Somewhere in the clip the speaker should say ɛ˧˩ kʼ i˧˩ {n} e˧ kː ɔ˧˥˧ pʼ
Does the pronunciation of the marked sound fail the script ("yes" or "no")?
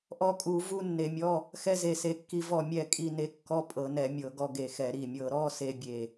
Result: no